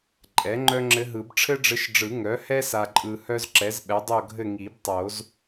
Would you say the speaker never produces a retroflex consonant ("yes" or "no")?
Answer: no